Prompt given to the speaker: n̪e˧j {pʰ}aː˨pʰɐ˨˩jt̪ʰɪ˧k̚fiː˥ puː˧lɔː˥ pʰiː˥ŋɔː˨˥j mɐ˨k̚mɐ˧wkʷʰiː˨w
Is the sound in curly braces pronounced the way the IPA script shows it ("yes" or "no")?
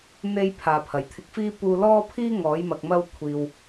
yes